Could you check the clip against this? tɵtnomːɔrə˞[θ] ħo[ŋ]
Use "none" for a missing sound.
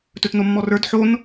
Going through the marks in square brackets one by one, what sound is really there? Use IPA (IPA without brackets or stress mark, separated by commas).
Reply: d, n